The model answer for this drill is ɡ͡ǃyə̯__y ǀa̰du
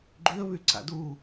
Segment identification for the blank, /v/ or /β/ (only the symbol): β